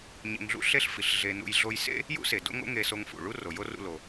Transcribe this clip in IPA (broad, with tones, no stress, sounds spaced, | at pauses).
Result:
ɲ ḛ˧ ŋ ɮ ṵ˥ ɬ e˥ ɬ f i˩ ɬ ɮ e˧ n ṵ˧ j ɮ o˧ j s ḛ˥ | j ṵ˥ s e˩ d o̰˥ ŋ o̰˥ ŋ e˧ s o˧ ŋ f ṵ˩ ɭ u˥ r o˩ j o˥ r ṵ˧ l o˩